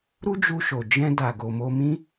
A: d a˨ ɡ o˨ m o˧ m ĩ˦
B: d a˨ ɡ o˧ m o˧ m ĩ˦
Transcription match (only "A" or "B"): A